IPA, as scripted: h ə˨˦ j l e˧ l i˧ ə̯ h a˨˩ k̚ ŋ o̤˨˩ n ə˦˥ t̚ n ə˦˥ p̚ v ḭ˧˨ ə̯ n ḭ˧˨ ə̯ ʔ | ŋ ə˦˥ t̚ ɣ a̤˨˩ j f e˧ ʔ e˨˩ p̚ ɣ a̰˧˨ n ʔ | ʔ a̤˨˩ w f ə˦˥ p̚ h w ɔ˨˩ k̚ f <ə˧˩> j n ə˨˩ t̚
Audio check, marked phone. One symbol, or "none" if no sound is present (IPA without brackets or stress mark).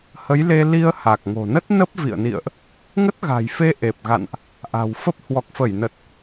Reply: ə˧˩